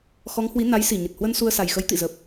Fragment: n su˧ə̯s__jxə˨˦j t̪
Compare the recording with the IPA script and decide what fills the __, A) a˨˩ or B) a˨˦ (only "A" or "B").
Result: A